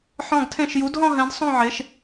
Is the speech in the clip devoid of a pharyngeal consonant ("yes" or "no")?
no